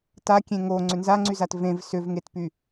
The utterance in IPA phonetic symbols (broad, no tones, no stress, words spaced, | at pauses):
takʲẽ ŋo ŋ͡ǀʏnzaŋ͡ǀyzat vẽv sʏvŋetpy